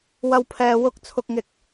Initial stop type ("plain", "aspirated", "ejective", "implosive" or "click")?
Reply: aspirated